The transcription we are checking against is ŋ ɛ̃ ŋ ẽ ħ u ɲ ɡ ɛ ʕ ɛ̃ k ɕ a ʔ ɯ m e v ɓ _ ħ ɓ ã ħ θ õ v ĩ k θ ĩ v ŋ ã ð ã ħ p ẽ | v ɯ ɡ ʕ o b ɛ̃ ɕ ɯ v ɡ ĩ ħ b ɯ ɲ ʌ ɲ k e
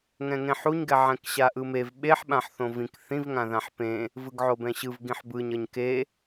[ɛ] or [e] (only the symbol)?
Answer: e